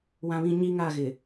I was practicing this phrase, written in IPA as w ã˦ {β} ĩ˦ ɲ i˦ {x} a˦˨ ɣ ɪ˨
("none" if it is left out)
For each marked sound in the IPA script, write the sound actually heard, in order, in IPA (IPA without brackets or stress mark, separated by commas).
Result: β, ŋ